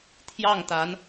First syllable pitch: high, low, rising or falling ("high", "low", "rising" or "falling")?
falling